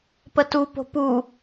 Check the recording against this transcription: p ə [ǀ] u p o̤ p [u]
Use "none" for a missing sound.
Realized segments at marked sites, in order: t, u

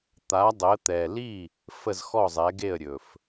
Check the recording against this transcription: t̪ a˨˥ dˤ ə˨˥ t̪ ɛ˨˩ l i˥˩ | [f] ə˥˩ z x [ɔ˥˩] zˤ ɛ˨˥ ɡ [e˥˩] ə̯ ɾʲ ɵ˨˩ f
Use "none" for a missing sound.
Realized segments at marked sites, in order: f, ɔ˥˩, e˥˩

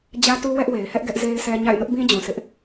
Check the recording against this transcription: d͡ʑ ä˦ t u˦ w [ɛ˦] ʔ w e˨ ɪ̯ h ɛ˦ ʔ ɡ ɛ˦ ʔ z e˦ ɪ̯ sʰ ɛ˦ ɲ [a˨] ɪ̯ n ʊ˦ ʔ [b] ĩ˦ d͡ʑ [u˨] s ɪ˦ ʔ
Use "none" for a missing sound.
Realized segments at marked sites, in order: ɛ˦, a̰˦˨, b, ũ˨

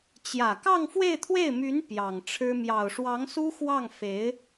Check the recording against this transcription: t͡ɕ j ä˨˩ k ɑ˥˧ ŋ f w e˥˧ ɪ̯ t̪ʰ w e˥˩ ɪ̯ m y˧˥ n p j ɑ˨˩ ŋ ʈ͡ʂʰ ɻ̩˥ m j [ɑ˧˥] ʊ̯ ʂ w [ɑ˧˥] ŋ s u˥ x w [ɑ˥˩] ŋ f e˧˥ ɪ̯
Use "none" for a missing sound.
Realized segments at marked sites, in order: ɑ˨˩, ɑ˧˥, ɑ˥˩

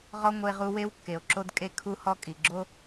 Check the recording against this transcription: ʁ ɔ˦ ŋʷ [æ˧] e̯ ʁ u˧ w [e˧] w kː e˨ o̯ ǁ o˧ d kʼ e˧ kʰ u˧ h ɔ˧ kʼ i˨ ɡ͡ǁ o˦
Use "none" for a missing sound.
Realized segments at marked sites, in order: ə˧, e˧

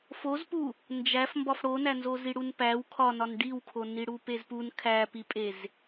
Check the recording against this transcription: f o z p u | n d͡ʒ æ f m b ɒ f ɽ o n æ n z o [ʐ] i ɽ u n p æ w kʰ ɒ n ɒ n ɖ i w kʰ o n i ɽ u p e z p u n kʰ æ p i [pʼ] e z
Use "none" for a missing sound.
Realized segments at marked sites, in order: z, pʼ

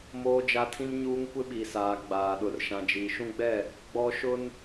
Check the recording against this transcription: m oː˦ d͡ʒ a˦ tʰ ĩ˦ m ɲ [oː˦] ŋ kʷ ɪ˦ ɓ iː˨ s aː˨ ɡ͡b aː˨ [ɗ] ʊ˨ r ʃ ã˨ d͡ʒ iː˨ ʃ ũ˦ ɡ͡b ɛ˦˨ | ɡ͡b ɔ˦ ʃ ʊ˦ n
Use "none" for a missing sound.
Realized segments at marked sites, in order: uː˦, ɗ

